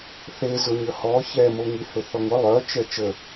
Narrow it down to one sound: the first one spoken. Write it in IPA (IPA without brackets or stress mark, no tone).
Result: θ